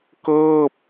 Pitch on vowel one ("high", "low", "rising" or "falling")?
falling